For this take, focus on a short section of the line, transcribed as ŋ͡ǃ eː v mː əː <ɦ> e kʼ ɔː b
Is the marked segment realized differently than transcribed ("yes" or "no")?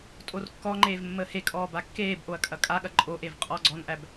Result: yes